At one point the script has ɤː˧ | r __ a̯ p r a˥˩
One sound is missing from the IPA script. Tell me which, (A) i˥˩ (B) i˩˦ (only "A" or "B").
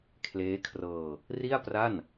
A